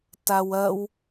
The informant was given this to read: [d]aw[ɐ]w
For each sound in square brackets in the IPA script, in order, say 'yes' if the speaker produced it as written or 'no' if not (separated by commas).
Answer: no, yes